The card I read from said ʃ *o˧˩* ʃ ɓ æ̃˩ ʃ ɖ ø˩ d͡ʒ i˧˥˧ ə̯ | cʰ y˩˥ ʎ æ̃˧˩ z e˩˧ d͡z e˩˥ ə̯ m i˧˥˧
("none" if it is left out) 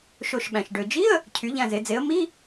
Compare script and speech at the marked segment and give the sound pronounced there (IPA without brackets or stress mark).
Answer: o˧˩